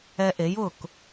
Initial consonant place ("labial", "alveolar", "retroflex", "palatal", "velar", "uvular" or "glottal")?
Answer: glottal